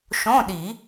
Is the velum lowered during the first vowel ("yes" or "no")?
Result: yes